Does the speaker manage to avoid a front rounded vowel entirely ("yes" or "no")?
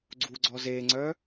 no